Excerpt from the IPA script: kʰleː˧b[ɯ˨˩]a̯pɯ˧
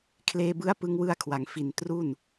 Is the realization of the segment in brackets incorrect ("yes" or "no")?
yes